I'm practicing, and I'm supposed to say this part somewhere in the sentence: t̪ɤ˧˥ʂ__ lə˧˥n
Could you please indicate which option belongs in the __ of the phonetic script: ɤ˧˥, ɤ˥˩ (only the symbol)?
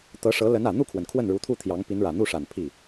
ɤ˧˥